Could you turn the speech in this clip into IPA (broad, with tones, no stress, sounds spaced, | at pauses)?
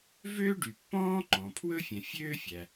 v øː˥ ɖ y˩ pː ɔ̃ː˥ ŋ͡ǃ ɔ̃ː˩ pʰ w ɵ˥ fʲ ɛ̃˩ fʲ øː˥ fʲ æ˩